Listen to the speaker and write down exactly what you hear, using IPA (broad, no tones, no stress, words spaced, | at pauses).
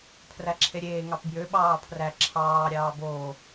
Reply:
pʰræǁʰeɾʲeː ŋɑpbjø ɓɑːpʰræ ǁʰɑː ɾʲɑːboː